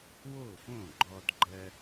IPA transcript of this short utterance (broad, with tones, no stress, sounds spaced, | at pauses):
w o˥˩ f õ˥˩ ɡ͡ǃ ɔ˧ d ɡ͡ǃ ɜ˧